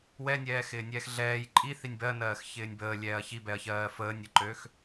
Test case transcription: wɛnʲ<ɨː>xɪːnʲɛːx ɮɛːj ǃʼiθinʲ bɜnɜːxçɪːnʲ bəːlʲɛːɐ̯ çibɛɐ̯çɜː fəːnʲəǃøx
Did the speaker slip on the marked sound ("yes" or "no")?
yes